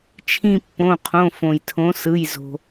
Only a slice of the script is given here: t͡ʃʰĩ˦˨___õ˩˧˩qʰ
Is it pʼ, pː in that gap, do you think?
pː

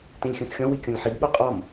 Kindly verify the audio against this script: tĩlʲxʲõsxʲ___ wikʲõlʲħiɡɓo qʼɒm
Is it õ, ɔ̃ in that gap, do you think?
ɔ̃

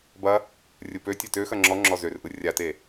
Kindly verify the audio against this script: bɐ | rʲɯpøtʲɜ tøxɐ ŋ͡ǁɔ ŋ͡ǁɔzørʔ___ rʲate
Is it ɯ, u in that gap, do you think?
ɯ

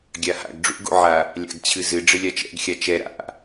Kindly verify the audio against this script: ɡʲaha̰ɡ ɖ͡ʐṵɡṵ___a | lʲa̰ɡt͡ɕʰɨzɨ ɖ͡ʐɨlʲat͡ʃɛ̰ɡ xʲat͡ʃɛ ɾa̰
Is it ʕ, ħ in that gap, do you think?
ʕ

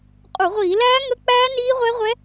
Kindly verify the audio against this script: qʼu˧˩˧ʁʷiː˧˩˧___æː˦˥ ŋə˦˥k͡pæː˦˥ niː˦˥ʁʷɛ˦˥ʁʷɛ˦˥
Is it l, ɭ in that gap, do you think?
l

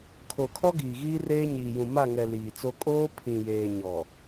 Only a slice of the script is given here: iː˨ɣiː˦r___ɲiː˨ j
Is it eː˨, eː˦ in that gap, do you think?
eː˦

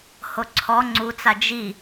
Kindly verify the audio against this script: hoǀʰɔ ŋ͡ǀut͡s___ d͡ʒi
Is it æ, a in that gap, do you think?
a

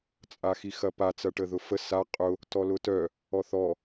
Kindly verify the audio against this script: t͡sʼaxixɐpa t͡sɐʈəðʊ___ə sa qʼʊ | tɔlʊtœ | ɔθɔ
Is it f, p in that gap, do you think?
f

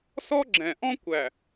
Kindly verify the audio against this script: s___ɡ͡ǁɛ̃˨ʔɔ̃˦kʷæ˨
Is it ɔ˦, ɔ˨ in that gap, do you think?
ɔ˦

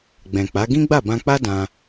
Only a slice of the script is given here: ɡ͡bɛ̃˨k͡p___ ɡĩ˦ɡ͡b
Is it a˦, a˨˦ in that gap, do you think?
a˨˦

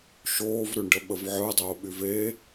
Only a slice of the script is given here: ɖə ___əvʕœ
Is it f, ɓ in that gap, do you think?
ɓ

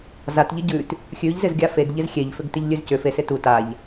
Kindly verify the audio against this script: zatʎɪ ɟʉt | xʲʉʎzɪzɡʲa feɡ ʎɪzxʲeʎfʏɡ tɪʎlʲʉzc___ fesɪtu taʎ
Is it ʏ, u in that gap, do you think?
ʏ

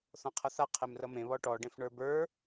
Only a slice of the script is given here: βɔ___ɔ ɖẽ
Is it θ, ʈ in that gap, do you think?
ʈ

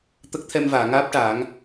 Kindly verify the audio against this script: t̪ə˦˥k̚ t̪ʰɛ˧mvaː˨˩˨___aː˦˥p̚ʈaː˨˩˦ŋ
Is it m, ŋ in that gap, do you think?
ŋ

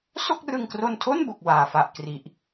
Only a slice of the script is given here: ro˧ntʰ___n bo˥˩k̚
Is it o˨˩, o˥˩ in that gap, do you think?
o˥˩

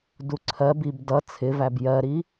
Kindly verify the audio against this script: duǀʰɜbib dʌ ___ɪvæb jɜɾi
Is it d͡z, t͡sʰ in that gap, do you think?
t͡sʰ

